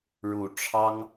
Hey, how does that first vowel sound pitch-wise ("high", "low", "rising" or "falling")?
low